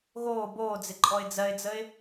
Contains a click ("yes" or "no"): yes